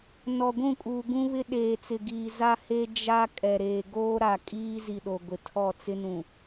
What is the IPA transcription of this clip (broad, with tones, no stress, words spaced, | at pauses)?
nɔ˨ɡʷũ˦˨kʼuː˨ ɡũ˦βɪ˦ ɗeː˨t͡sɪ˨ɡiː˨ za˦he˦ d͡ʒa˦ kʼɛ˨ɾeː˨ɡoː˦ ɾa˨kʼiː˦ zi˨ɗo˨ ɡʷɪ˨tʰɔ˦˨t͡sɪ˦nũ˨